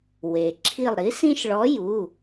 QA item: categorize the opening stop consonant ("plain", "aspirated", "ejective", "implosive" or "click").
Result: click